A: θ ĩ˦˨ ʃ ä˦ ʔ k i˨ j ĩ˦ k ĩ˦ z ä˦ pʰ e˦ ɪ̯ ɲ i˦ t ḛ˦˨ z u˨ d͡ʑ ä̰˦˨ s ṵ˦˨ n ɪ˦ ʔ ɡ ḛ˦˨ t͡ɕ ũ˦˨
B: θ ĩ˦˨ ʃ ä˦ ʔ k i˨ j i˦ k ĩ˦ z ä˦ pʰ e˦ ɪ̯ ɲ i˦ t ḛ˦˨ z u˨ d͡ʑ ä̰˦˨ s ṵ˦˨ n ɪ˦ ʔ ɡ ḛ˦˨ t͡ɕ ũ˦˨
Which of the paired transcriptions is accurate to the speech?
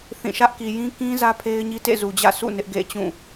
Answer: A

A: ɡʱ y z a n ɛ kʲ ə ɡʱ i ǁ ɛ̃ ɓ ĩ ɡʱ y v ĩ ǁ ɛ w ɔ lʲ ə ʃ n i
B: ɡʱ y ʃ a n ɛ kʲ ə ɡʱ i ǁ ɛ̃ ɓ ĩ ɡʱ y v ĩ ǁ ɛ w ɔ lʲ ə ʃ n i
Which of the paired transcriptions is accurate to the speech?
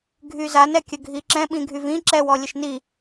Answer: A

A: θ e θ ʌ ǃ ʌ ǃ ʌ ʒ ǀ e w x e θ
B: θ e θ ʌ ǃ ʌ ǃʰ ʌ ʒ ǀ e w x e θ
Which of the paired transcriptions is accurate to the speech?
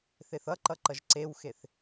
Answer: A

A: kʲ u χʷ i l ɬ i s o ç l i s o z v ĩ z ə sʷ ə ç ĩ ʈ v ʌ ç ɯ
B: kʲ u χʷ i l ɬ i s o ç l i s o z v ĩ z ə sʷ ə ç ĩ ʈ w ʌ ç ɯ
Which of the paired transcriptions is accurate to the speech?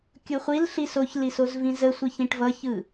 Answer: A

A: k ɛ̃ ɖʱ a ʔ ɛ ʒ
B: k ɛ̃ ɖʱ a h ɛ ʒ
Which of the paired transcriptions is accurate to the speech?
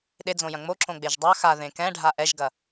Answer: A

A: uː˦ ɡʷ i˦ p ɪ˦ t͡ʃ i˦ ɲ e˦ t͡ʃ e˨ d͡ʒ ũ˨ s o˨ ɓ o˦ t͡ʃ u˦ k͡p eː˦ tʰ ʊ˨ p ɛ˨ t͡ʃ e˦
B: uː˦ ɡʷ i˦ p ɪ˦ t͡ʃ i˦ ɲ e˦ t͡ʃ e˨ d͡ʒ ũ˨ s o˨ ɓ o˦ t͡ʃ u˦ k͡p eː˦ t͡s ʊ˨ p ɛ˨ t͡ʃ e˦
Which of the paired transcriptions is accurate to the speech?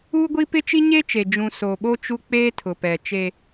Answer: A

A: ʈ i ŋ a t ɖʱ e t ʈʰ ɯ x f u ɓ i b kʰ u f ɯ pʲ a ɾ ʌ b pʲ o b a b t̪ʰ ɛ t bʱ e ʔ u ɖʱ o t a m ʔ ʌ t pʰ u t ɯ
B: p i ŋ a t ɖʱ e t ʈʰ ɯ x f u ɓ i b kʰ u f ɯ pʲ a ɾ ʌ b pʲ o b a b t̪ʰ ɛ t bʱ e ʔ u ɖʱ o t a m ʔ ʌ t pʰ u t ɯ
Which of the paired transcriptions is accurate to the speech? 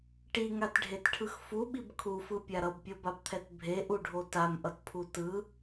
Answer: A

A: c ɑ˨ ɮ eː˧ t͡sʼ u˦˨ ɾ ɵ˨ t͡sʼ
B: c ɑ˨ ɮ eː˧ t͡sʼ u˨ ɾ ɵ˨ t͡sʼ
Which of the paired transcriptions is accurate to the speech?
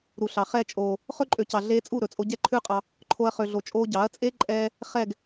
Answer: A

